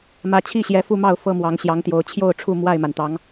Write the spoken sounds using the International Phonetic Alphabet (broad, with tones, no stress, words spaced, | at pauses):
mä˨˦t͡ɕʰi˥˨ɕjɛ˨˦ fu˥˨mɑ˥˨ʊ̯ fɤ˦mwɑ˨˦ŋɕjɑ˨˦ŋt̪jo˨˦ʊ̯ t͡ɕʰjo˥˨ʊ̯ʈ͡ʂʰu˥˨ mwa˥˨ɪ̯ma˩nt̪ɑ˨˦ŋ